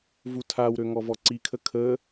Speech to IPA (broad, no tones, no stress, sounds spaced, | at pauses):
v u tʰ a w ɾ ø ŋ ɔ v ɔ ǀ i kʰ ə kʰ ə